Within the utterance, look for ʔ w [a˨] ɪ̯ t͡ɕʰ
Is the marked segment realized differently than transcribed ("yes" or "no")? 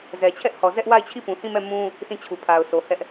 yes